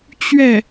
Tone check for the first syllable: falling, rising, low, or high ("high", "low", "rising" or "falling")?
falling